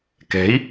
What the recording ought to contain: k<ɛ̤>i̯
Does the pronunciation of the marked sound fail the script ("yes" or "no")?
no